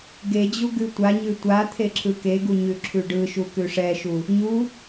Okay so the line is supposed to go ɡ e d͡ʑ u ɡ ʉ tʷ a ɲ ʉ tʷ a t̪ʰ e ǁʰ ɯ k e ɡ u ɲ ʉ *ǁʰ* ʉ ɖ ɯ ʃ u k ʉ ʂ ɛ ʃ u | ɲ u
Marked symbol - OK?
yes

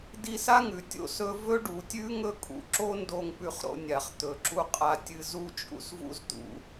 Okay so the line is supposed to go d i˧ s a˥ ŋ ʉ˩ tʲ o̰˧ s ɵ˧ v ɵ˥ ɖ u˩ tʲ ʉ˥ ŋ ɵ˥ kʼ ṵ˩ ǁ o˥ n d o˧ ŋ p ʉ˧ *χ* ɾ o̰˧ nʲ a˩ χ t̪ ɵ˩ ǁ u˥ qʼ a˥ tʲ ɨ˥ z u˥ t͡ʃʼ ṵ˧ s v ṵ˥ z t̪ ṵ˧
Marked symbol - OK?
yes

